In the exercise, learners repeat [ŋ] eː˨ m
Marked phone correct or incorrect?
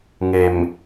correct